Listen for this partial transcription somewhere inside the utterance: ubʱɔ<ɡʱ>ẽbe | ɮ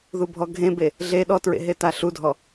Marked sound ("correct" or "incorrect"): correct